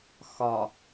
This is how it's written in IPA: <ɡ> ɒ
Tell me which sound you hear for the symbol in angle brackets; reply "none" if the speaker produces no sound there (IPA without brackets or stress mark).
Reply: x